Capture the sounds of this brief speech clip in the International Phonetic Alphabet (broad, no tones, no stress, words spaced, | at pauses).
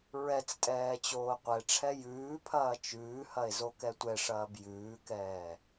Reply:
ɹɛt͡stʼɛː t͡ɕoːqʷɛʈ͡ʂʰɛ jʉːpʰɐː t͡ʃʉːhɐe̯ zokɛtʷɛʂɐːb jʉːkɛː